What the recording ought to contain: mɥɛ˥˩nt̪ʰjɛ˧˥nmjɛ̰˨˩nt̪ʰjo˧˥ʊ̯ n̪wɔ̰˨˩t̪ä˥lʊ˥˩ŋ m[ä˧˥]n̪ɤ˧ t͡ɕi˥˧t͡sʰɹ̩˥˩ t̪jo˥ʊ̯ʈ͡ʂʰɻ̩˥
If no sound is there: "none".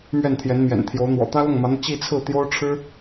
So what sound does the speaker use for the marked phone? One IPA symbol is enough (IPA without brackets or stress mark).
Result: ä˧˥